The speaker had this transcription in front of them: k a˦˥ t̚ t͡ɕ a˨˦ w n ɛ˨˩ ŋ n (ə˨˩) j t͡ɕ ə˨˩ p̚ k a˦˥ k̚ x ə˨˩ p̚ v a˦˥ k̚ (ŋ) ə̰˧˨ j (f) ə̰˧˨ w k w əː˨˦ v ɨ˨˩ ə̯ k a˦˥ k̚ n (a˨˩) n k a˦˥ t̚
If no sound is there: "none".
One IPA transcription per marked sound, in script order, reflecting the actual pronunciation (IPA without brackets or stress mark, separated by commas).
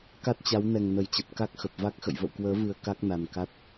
ə˨˩, x, v, a˨˩